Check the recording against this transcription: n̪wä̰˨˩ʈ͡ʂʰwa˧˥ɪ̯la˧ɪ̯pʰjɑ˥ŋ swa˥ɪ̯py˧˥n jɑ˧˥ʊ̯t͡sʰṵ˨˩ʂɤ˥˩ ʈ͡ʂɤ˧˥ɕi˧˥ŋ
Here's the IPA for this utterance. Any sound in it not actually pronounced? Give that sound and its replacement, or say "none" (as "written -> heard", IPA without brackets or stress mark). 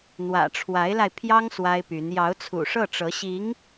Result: none